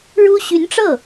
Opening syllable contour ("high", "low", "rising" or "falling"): high